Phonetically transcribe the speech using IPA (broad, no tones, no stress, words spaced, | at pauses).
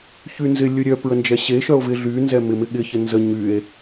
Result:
çynzɪ lʲʊɾʲœ pɹənd͡ʒɛɕe ʃœo̯vɪ ɮynzɛ mɪmɪɠɪçɪ nzə ɲye̯